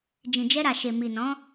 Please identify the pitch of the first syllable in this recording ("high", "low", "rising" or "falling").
low